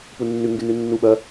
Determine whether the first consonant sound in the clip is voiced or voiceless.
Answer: voiceless